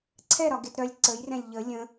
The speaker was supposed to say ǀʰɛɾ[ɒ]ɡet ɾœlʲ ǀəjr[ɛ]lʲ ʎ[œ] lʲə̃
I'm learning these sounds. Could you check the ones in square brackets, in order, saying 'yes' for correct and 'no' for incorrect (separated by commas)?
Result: yes, no, no